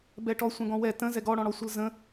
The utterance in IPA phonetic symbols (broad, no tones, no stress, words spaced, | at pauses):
bɛʈɔ sʷɛ̃ɡɔ̃wɛ tə̃ zɛɡɔɽɔ̃ɽɔ sʷəlzə̃